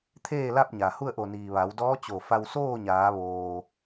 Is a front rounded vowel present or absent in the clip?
absent